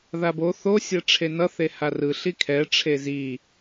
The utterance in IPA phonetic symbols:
ðabo θosʲɛ ʈ͡ʂʰenʌθe harɯɬi kʰɛ ʈ͡ʂʰezi

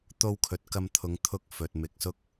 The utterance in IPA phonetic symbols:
t̪o˧wkʰɵ˨t̚ kɐ˧mt̪ʰʊ˨˧ŋ t̪ʰʊ˧k̚fɵ˨t̚ mɪ˧k̚sʊ˥k̚

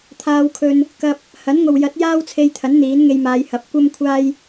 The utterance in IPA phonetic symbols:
t̪ʰaː˧wkʰɵ˧n | kɐ˧p̚ | hɐ˨˥nŋo˨wjɐ˨˥t̚ jaː˥wt͡sʰe˧jt̪ʰɐ˨˥n n̪iː˨˥nŋe˧jmaː˨˧jhɐ˨˥p̚ kʷɐ˥m kʷʰaː˥j

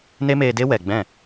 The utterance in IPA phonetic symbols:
ne˦meː˧de˦ wɛ˨ɡ͡bɛ̃˦˨

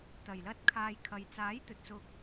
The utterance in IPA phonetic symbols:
t̪ɐ˨˩jlɐ˧t̚kʰaː˨j kʰɐ˨jt͡saː˨˥jt̪ɵ˨t̚sʊ˧k̚

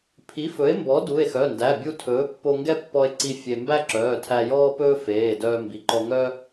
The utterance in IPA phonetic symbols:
pʰi˩˥fɵ˩˥e̯mbɔ˩˥ du˩˧˩e̯xœ˩˧˩ndæ˩˧˩ bʲu˧ tʰɵː˩˥pːo˧ ŋɡɛ˥pːɔ˧e̯ǀi˧ fʲe˧ mbæ˥ǁœː˩˧˩ tʰæ˧jɔː˥pɵː˥ feː˩˧˩ dœː˧mbi˩˧˩ǃɔ˧ ŋœ˥

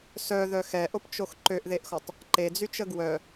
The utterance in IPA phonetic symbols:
sœðœ xɛʔopt͡ʃox ǃøʔðeʔxɔtˤ | ǃed͡zyt͡ʃə ɡwœ

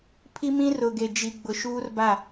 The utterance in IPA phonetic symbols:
pʰi˦mĩ˦rʊ˨ɡe˨ d͡ʒi˨ ɡ͡bʊ˨ʃuː˦rba˦˨

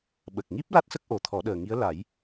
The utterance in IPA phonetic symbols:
ɓə˨˩k̚ŋi˦˥p̚ la˦˥t̚sə˦˥k̚ ʔo˨˩˦t̪ʰɔ˨˩˦ɗəː˨˩ŋi˧˥ə̯ la˨˩˦j

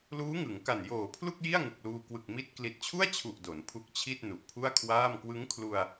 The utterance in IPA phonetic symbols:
luː˦˥ŋɯ˩˦ŋka˨˩n joː˨˩pʰlu˥˩k̚ ji˥˩a̯ŋɯ˨˩k̚luː˧ kwɯ˨˩k̚ mi˥˩t̚ kli˨˩t̚t͡ɕʰu˥˩a̯t͡ɕʰu˨˩ʔ do˩˦npʰu˦˥k̚t͡ɕʰi˥˩t̚ nu˨˩ʔpʰu˥˩a̯kʰwaː˥˩m kwɯ˦˥ŋkʰlu˧a̯

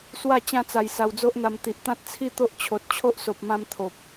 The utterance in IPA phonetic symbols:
swa˥˧ t͡ɕã˧t͡sa˨˩j sa˧wd͡zo˦ʔn̪a˧m t̪i˨ʔt̪ã˦t̚t͡sʰi˥˧ t̪o˦ʔt͡ɕʰo˨t̚ t͡ɕʰo˦ʔso˨p̚mã˧m t̪ʰo˨p̚

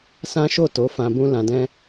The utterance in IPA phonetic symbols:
sã˦ʃo˦˨to˨˦ fã˧bũ˦lã˧dɛ̃˦

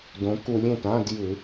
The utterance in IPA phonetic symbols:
dõ˩˧ku˧˩˧lʲ ẽ˩˧˩tã˧˥˧d jɯ˧˩˧

